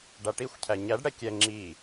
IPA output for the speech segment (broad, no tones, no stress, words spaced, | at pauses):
ɖaʈixʷcʰæ ɲæɖɽɛ kʲɛ ŋ͡ǁi